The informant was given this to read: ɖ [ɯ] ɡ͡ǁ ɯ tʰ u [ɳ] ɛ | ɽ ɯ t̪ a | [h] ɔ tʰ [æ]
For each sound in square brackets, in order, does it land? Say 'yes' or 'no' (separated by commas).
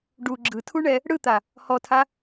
no, yes, yes, no